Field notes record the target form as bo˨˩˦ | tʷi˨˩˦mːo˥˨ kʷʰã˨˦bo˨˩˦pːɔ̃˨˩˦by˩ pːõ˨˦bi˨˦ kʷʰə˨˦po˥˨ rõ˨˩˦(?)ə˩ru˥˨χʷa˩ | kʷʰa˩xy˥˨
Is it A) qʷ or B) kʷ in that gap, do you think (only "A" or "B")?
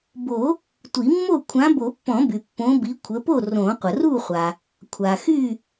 A